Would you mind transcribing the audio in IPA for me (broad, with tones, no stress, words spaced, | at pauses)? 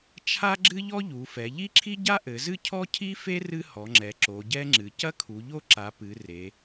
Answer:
t͡ʃʰa˥ɡ͡ǁɨ˥ʎɔ˥ ʎu˩˧fɛ˩˧ ʎi˥ǁʰi˥ɟa˥ ʔɘ˩˧zɨ˥ cʰɔ˥cʰi˥fe˥ rɨ˥hɔ˩˧ŋ͡ǁɛ˩˧ ǁo˩˧ɟɛ˥ŋ͡ǁɨ˩˧ cɐ˥kʰu˩˧ʎo˥ǁa˩˧ pɨ˩˧ re˩˧